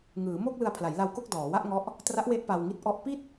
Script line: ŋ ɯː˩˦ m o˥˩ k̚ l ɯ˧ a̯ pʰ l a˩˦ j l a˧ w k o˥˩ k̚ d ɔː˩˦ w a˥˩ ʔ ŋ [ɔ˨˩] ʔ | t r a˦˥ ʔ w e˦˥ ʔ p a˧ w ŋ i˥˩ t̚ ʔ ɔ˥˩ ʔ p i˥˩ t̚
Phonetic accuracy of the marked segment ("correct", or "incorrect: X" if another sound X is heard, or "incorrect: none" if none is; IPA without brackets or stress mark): incorrect: ɔ˦˥